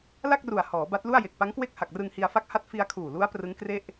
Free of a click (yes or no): yes